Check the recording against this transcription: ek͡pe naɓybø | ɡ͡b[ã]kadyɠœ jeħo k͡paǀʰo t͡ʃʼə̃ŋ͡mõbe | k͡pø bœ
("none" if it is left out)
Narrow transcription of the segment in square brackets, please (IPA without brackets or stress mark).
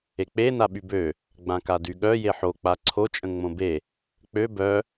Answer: ã